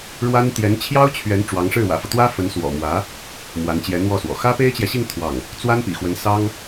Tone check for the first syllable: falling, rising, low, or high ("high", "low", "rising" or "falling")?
high